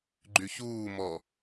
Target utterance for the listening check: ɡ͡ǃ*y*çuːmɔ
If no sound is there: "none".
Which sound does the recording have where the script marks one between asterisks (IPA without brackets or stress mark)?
y